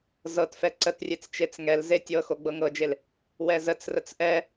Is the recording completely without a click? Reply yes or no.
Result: no